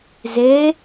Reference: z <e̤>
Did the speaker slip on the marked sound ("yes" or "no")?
yes